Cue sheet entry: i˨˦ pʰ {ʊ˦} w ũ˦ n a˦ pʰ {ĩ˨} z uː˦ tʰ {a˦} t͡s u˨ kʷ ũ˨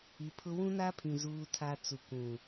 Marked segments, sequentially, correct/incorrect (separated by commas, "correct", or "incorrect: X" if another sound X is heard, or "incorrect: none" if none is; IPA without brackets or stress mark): correct, correct, correct